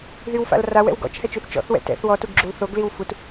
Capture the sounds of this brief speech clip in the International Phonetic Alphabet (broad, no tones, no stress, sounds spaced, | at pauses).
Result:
ð y w f a̰ l r a w ɛ̰ w ɡ ɔ̰ t͡ʃ h ɛ t͡ʃ y θ t͡ʃ ɔ̰ θ w ɛ̰ t ɛ̰ θ w ɔ t u ɡ ɡ͡ǁ u l θ o ɡ l i w f u t